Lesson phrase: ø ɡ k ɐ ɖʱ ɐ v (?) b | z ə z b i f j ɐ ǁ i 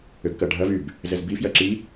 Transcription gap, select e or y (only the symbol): y